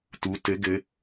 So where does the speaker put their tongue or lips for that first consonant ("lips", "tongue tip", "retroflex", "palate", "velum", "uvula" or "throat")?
tongue tip